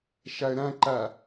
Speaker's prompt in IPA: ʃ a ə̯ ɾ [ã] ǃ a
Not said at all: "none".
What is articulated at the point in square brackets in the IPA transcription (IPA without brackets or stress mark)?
ã